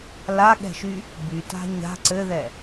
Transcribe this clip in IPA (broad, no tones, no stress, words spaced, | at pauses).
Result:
laɠɛ̤ʃy | byta̤ ɲa̤ ǀɘðɛ